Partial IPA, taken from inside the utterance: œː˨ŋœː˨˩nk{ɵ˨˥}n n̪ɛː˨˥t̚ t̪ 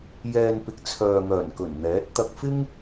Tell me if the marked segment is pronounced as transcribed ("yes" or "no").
no